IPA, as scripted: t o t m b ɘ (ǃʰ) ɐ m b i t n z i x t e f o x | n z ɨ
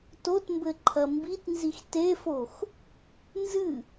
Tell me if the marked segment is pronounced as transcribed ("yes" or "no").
yes